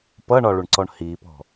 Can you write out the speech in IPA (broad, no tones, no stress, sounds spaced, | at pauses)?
p ʌ ɳ ɒ ɭ u ɳ ǀ ɔ ɳ h i p ɔ̤